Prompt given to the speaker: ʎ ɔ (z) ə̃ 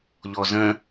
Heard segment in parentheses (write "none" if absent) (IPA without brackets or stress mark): z